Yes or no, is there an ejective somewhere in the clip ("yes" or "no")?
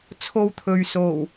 no